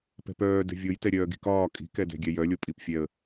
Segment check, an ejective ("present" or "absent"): present